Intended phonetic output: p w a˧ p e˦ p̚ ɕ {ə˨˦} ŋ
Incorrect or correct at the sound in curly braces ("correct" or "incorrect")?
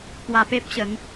correct